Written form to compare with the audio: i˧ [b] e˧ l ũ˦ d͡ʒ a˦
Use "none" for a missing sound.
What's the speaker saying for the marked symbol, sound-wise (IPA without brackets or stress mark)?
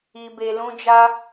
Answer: b